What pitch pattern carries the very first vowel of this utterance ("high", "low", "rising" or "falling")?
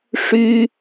high